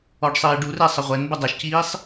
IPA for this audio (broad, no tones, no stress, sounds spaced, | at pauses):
ɔ ɖ sˤ iː ɖ u r e sˤ ə ʁʷ ɛ n b ə dˤ ɛ ʃ c iː sˤ